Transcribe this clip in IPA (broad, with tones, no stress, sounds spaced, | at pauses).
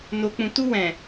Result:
n o˨ k͡p ũ˨ t u˧ w ɛ̃˨